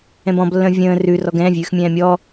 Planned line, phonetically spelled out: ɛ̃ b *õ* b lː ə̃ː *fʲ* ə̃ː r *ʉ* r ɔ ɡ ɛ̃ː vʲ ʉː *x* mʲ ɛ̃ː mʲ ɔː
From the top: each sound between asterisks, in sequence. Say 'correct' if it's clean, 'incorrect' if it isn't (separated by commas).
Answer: incorrect, incorrect, correct, correct